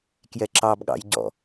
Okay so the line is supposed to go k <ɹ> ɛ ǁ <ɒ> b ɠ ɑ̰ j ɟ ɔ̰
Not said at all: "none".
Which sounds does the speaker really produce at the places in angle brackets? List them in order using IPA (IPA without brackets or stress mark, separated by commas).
j, ɑ